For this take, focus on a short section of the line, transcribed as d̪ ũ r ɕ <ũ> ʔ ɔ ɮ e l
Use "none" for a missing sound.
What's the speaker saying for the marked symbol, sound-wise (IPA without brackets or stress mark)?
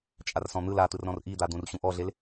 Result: ũ